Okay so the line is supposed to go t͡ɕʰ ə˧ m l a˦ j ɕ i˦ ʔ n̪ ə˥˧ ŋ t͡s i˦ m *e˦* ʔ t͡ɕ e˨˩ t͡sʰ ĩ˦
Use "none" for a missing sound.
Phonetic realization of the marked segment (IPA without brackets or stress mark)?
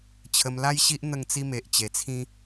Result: e˨